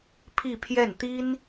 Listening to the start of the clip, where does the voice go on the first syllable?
falling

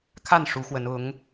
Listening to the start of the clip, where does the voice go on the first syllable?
falling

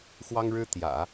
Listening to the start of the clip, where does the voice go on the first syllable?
high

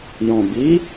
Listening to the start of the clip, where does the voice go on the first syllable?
low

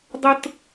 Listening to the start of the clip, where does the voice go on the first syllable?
high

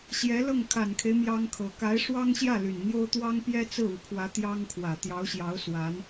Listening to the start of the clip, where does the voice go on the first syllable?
rising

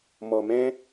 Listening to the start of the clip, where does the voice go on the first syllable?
low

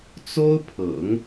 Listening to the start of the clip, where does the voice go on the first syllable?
high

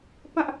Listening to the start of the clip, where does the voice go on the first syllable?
high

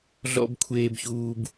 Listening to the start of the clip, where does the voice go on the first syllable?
high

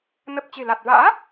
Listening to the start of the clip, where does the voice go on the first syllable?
low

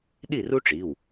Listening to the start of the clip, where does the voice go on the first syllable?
falling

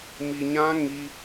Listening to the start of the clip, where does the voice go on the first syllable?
low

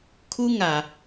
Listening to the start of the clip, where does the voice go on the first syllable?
high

